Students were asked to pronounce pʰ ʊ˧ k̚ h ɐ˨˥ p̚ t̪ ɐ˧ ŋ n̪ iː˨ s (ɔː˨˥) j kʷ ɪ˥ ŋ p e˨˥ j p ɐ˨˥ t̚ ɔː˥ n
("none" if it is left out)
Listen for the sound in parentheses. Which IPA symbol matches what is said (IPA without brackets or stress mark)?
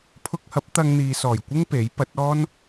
ɔː˨˩